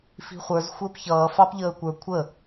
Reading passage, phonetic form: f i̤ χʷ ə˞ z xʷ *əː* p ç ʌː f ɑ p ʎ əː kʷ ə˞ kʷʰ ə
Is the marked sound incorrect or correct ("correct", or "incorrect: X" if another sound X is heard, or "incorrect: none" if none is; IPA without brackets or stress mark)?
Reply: correct